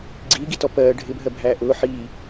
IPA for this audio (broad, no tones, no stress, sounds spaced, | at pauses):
ɡ͡ǀ iː ɡ i t ɔ p ɜː ɖʱ ɪ bʱ ɜ bʱ æː ʔ ʊː ħ iː